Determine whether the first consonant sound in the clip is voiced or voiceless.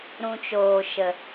voiced